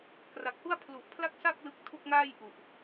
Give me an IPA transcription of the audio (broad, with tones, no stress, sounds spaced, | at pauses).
k r a˨˩ k̚ h u˥˩ a̯ pʰ l u˨˩ ʔ pʰ l a˥˩ k̚ s a˥˩ k̚ l ɯ˦˥ k̚ tʰ u˥˩ k̚ ŋ aː˥˩ j ʔ u˨˩ ʔ